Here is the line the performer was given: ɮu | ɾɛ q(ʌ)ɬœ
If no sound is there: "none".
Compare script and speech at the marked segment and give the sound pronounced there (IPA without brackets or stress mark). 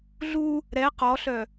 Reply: ɔ